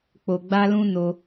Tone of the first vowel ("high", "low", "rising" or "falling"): low